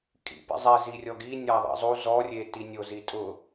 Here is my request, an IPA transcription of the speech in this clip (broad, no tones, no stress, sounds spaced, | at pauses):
kʼ ḭ p ḭ zˤ ɛ z i rʲ ɔ ɡ i nʲ a ðˤ ḭ zˤ u z ɔ rʲ e t i nʲ o z i tʼ ʊ